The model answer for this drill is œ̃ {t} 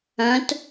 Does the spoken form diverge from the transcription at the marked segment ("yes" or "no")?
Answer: no